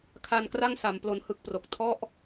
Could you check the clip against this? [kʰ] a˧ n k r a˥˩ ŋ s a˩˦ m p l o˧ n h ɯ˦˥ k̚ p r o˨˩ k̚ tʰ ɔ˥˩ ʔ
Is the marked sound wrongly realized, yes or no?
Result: no